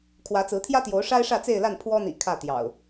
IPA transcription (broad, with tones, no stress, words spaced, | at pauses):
kʰwä˨˦t͡sɹ̩˨˦t̪ʰjä˦t̪jo˨˦ʊ̯ ʂa˦ɪ̯ʂä˥˨t͡se˥˨ɪ̯la˥˨n pʰwɔ˦n̪ḭ˨˩ kʰä˥˨t̪jɑ̰˨˩ʊ̯